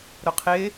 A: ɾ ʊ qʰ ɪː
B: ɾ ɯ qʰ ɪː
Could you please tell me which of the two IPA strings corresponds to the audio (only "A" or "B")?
A